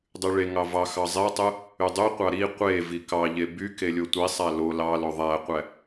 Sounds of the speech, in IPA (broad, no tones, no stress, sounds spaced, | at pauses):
dˤ y ɭ e ŋ ɑ v ɑ x ɑ zˤ e tˤ ɯ | y dˤ y qʷ ɑ ɾ i qʷ e v i k ɑ ʎ e b y k e lʲ o tʷ i sˤ æ l o l ɑ l o ðˤ æ qʷ æ